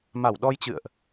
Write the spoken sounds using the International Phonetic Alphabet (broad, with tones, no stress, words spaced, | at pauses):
ma˧˩wɗɔ˧jt͡ɕɨ̰˧˨ə̯ʔ